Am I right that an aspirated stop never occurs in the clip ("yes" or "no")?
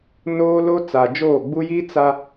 yes